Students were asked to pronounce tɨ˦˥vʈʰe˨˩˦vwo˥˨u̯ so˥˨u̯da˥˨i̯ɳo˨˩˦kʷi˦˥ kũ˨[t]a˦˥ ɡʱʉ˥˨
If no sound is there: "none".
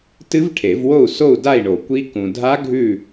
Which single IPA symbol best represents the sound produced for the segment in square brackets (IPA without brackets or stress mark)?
dʱ